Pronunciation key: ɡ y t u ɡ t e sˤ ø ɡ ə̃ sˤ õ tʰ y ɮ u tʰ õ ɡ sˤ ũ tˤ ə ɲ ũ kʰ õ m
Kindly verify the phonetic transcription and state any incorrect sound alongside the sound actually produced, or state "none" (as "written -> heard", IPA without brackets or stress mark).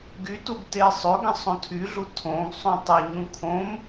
none